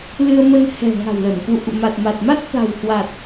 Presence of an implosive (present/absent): absent